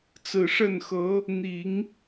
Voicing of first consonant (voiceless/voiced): voiceless